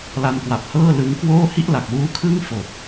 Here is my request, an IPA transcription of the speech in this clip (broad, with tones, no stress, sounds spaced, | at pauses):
l a˧ n k w a˨˩ p̚ h ɤː˥˩ l ɯ˦˥ ŋ k w oː˥˩ h i˥˩ ʔ l a˨˩ k̚ w uː˦˥ kʰ ɯː˥˩ ŋ f o˨˩ k̚